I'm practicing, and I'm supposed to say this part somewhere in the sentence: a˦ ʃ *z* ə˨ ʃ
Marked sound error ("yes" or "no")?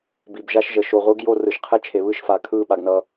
yes